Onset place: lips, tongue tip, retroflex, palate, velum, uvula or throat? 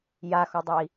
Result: palate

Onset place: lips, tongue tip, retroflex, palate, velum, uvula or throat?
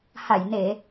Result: throat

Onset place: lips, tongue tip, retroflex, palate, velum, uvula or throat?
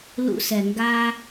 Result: tongue tip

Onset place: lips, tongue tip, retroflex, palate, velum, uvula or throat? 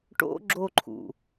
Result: retroflex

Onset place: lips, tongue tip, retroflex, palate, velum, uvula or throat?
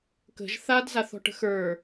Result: velum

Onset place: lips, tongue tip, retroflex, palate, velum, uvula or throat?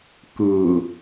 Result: velum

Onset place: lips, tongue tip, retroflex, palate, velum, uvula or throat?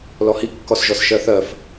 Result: tongue tip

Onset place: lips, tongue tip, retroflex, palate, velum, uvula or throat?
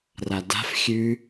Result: tongue tip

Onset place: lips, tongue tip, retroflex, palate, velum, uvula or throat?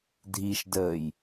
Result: tongue tip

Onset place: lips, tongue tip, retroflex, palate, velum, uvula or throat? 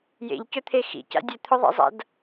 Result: palate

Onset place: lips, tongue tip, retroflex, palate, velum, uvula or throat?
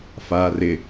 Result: lips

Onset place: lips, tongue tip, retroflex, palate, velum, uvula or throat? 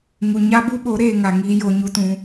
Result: velum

